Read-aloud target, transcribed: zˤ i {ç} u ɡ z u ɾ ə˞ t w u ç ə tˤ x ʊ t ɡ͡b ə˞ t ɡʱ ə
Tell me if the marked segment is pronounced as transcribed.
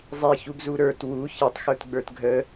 yes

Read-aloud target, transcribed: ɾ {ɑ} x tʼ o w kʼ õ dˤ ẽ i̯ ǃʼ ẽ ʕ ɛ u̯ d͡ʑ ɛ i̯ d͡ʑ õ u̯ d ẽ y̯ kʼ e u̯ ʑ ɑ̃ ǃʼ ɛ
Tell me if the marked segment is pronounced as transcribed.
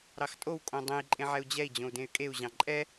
yes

